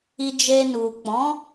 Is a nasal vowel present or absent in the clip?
present